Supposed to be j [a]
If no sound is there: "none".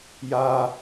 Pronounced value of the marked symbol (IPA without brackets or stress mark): a